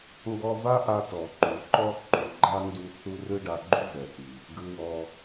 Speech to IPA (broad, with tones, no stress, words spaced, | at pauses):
ŋɡɔ˧va˥ʔa˧ tɔ˩ǃu˩ǃɔ˥ ǃu˩ɡ͡ǃa˥ ndu˧ θu˥ rɯ˥ɖa˧ɡ͡ǃu˥ vɛ˩ti˩ | ɡɯ˧wɔ˧